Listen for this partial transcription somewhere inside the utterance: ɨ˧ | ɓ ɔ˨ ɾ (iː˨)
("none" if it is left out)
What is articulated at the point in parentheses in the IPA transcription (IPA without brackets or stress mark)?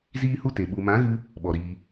iː˧